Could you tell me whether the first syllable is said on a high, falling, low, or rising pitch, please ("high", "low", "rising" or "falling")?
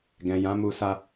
low